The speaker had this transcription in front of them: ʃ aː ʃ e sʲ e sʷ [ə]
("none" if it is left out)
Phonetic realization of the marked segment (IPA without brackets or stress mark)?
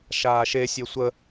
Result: ə